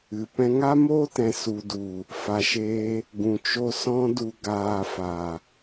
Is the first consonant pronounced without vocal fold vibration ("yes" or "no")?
yes